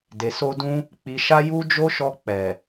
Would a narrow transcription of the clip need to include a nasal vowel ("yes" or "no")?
yes